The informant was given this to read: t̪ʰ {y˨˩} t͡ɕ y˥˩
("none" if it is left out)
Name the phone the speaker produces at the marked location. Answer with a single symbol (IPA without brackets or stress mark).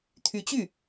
y˧˥